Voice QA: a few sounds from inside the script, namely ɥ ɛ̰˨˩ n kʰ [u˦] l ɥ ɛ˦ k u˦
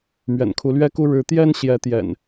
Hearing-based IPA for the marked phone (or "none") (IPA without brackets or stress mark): u˨˦